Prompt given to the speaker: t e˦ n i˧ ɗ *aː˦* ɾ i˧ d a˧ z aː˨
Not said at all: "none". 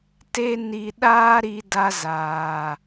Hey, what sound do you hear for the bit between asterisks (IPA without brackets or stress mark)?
aː˦